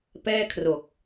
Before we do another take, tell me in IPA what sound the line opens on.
p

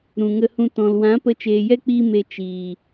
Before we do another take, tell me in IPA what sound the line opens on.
ɾ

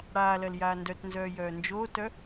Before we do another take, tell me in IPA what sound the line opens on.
ɽ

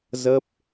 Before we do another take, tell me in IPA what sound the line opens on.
z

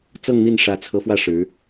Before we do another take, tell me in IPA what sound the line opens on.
t͡s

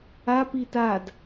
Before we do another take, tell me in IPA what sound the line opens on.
a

